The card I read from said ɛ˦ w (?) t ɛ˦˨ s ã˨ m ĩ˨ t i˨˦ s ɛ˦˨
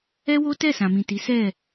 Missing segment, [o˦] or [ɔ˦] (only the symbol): o˦